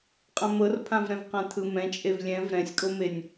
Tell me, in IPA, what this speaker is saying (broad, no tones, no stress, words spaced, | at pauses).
qʼãmɤrpʰãvɾɛ̃v qãt̪ʰɯmɛ̃ t͡ʃʼevlʲɛ̃v ɾɛ̃sʲkʼomenʲ